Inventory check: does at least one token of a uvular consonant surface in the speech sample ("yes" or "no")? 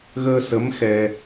no